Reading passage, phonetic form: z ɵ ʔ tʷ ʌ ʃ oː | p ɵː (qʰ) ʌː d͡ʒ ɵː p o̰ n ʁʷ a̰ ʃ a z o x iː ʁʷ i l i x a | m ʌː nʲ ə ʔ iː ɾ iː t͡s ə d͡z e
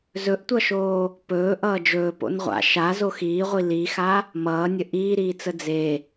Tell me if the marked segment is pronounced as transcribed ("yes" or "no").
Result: no